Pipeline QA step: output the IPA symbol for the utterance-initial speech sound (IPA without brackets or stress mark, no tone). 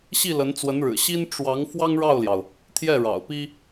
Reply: ɕ